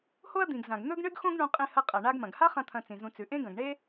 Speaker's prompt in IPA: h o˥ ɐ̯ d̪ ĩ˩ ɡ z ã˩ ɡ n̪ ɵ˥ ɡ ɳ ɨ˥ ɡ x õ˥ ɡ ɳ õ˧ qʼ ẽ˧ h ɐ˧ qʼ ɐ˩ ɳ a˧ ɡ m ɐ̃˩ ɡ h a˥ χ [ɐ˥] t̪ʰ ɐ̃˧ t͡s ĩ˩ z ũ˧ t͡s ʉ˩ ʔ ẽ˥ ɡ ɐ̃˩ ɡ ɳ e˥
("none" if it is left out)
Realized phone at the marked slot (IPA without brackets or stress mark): ɐ̃˥